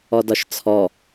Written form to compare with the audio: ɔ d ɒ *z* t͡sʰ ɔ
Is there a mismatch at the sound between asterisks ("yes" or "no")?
yes